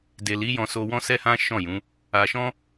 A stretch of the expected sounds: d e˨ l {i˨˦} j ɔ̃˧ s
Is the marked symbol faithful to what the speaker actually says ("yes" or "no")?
yes